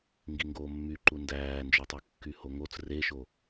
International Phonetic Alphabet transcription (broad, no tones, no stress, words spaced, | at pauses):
ŋɡiŋɡoːmːy ǃundæːnd͡ʒœtˤy kːyhoŋot͡s reʃo